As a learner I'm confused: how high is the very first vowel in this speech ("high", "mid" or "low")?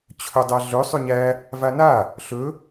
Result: mid